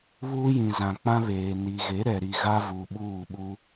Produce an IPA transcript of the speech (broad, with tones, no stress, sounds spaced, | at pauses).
β uː˦ j ĩ˨ z ã˨ k͡p ã˦ β eː˨ n i˨ ɣ e˨˦ ɾ ɛ˨ ɾ i˨ ɣ a˦ v u˨ ɓ uː˦˨ ɓ u˦